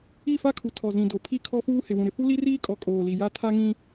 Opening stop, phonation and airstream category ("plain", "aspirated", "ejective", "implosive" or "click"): aspirated